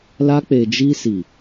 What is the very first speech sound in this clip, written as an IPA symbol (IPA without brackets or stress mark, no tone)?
l